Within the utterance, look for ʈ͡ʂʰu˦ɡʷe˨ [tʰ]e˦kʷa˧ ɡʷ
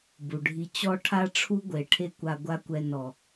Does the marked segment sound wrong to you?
yes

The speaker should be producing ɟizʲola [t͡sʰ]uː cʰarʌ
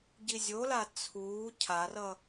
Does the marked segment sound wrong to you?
no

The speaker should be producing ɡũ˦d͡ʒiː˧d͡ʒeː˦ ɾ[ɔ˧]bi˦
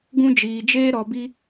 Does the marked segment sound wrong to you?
no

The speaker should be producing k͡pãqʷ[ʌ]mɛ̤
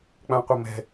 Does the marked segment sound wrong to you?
no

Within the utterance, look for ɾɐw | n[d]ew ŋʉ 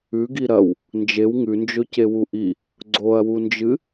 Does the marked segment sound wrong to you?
yes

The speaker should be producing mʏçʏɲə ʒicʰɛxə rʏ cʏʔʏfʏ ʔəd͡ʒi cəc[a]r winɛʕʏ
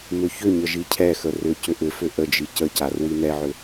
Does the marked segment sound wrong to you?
no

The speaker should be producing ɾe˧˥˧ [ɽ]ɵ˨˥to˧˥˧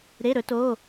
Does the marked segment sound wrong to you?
yes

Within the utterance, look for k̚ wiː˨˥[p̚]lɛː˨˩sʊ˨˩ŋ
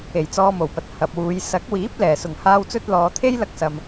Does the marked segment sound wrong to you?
no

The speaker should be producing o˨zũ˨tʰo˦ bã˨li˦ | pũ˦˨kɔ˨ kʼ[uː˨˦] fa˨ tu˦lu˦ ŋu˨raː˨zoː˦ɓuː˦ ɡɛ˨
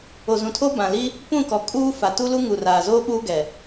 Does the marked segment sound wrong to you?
yes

